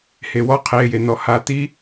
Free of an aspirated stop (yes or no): no